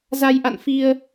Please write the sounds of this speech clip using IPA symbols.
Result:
z a˧ j ʔ a̰˧˨ n f i˧ ə̯

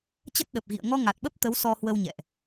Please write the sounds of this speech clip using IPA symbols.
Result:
t͡ɕ ə˦˥ t̚ ɗ ə˨˩ p̚ ɣ ḭ˧˨ ə̯ ŋ ɔ˧ ŋ a˨˩ t̚ ɓ ə˦˥ p̚ t̪ ə˨˦ w s ɔ˧ h w ə˧ w ɲ ɛ̰˧˨ ʔ

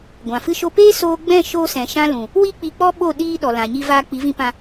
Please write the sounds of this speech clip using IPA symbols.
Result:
ɡʷ ã˨ f ɨ˦ ʃ o˦ p eː˦ s oː˧ ɡ͡b ɛ̃˦˨ ʃ o˧ s ɛ̃˨ ʃ ã˧ l ũ˨ | w i˦ k͡p i˧ k͡p ɔ˦ ɓ o˦˨ ɗ iː˧ ɗ ɔ˨ l ã˨ ɲ i˧ v aː˧ k͡p i˨˦ v ĩ˧ p ã˧

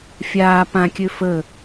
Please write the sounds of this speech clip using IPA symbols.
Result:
fʲ aː p ã kʲ ø f ə

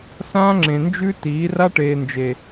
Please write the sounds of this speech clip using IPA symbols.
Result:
s ãː˦ ŋ͡ǁ ẽ˨ n d͡ʒ ʉ˦ t iː˨˦ r a˦ ʈ eː˨ n d͡ʒ e˨

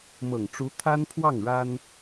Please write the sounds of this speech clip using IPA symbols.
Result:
m ɤ˨˩ ŋ ʈ͡ʂ u˧˥ t̪ʰ a˥ n pʰ w ɑ˥˩ ŋ ɻ a˥ n

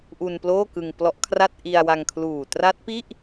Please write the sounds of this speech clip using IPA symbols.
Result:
ʔ u˧ n p l oː˥˩ k ɯ˧ ŋ p l ɔ˦˥ ʔ kʰ r a˥˩ t̚ ʔ i˧ a̯ w a˧ ŋ kʰ l uː˨˩ t r a˦˥ t̚ p i˥˩ ʔ

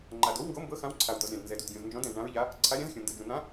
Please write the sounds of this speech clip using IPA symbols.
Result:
ŋ͡ǃ a˩ d o˨˥ w ŋ ɡ o˨˥ m b ɤ˨˥ x ã˨˥ w ǀʰ a˩ w d̪ ɔ˩ z ɾʲ ã˩ d n z ɛ˩ d u˩ d ɡʲ õ˩ z n d͡ʒ ɔ̃˨˥ d ɛ̃˩ z ɳ ã˨˥ ɹ ʎ a˨˥ | ǀʰ a˨˥ ɾʲ ã˨˥ z xʲ õ˩ n d ɤ˩ d͡ʒ ũ˩ n̪ ã˨˥

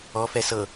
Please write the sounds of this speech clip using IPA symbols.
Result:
ɔ f ɛ s ɤ

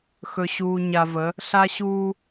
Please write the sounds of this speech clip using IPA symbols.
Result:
x ɵ˨ ɕ uː˨ ɲ a˨ v ə˨˦ | ɬ a˦ ɕ uː˦

